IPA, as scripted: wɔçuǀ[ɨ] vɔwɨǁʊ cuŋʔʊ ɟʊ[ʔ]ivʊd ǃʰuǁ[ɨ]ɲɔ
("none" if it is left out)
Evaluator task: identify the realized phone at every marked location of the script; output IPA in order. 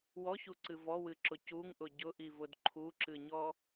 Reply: ɨ, ʔ, ɨ

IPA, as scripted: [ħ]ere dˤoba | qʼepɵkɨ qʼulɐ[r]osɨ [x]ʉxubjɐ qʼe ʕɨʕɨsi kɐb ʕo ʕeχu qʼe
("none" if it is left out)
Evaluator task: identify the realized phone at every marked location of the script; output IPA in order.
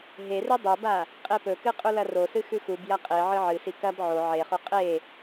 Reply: ɦ, r, x

